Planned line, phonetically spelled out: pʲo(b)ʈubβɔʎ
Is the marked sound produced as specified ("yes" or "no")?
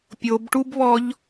yes